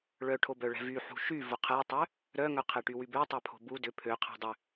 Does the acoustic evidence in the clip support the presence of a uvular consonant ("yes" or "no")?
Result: yes